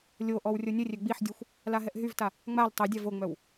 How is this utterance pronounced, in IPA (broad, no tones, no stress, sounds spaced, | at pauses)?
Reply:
lʲ o ʔ ɔ w rʲ o nʲ ə rʲ ø ɡ͡b i ħ dʲ ø xʷ | l a ɦ ɛ ʔ ɦ y v t a | ŋ͡m a l tˤ œ dʲ a v o ŋ͡m œ w